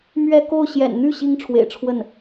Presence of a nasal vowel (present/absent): absent